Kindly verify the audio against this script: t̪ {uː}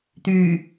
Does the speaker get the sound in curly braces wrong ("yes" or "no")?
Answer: yes